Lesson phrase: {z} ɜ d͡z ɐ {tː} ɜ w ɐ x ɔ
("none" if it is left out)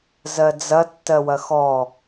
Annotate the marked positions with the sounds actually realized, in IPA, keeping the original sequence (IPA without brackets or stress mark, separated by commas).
z, tː